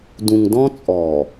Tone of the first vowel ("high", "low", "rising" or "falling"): low